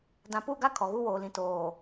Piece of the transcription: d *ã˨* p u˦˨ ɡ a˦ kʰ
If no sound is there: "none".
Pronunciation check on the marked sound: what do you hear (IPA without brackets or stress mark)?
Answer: ã˨